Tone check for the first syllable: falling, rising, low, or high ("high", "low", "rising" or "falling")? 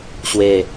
falling